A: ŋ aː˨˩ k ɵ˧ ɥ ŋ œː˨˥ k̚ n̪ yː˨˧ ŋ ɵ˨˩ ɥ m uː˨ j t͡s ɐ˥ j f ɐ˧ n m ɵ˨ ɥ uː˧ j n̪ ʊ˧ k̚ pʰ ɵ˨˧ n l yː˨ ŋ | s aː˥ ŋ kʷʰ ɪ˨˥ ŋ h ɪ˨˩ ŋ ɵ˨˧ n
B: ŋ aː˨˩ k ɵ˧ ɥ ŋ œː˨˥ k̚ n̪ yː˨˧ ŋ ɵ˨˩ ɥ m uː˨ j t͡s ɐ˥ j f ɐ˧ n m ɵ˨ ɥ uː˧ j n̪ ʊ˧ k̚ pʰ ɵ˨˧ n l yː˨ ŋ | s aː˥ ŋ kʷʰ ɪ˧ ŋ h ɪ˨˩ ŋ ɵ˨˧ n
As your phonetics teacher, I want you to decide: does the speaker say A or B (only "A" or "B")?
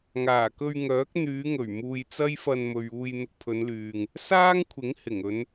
A